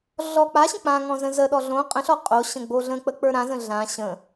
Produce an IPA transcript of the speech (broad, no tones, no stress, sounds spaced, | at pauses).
ɮ ɔ k͡p a ɕ ə̃ k͡p ã ŋ ɔ̃ z ə̃ z ə ɗ ɔ ɮ õ qʼ ə̃ ɬ ɔ qʼ o ɕ ə̃ ɡ͡b o ɮ ə̃ k͡p ə k͡p ə˞ ɾ ã z ə̃ ɮ ã ɕ ə̃